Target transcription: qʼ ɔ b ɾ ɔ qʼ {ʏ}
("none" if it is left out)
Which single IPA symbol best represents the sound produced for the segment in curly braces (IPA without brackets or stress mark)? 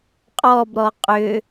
ʏ